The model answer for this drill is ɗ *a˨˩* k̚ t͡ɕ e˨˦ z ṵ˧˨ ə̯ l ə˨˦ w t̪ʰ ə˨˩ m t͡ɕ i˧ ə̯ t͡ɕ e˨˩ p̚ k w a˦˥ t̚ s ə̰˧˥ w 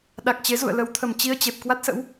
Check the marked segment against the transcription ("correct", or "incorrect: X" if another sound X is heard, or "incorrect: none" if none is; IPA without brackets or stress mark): correct